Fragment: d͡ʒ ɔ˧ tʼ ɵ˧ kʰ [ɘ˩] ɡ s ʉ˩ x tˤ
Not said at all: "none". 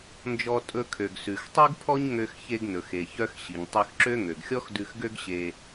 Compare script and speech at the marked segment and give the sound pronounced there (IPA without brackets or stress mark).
ø˩